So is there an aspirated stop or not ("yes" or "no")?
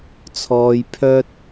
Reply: yes